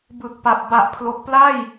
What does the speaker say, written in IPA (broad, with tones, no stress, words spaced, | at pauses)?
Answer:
bɯ˨˩k̚pa˨˩p̚ ba˨˩ʔpʰlo˨˩k̚pla˥˩j